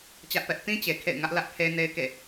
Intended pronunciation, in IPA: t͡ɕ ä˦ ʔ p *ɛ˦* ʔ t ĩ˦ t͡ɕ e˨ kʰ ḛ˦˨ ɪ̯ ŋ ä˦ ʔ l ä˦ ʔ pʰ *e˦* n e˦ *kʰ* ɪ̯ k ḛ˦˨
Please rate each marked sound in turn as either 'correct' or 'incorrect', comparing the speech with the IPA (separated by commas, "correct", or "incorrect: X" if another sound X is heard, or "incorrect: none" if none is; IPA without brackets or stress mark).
correct, correct, incorrect: none